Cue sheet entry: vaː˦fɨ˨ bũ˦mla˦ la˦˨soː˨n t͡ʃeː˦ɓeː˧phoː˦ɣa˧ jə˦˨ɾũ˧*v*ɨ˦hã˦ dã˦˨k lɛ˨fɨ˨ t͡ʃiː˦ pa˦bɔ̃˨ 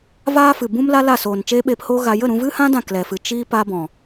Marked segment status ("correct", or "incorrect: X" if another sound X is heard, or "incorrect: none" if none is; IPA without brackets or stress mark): correct